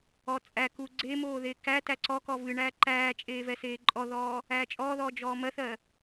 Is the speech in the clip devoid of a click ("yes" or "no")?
no